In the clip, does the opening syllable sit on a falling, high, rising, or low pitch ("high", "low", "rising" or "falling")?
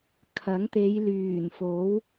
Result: rising